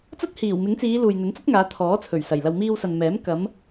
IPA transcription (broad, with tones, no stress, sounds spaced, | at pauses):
t͡s ɐ˥ t̚ h iː˨˩ w m ɪ˨˥ ŋ t͡s iː˨˧ l uː˨ j n̪ ɵ˨˥ n t͡s ɐ˥ t̚ ŋ aː˨˧ t̪ʰ ɔː˨˥ t͡sʰ ɵ˨˩ ɥ s ɐ˨˩ j l ɐ˨ w m iː˧ w s ɐ˨ n m ɛː˨˥ m k ɐ˨˧ m